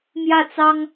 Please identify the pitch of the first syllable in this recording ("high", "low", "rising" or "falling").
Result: falling